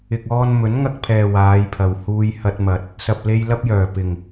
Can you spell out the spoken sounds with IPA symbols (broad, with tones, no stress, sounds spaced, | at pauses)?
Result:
ɪ˨ k̚ ɔː˧ n m ɵ˨˥ n ŋ ɐ˧ k̚ pʰ ɛː˨ w aː˨˧ j pʰ ɐ˨ w h uː˧ j h ɐ˧ t̚ m ɐ˨ t̚ | s ɐ˨ p̚ l e˧ j l ɐ˥ p̚ j œː˨˩ p ɪ˨˩ ŋ